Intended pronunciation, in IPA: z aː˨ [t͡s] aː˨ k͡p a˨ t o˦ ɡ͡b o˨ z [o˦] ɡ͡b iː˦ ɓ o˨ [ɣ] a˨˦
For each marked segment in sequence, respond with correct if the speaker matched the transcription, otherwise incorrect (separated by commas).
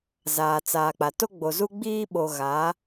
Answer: correct, incorrect, correct